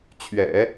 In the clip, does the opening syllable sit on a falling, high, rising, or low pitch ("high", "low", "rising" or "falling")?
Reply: low